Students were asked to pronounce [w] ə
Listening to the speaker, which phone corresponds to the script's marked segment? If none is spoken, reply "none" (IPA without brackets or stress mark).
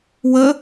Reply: w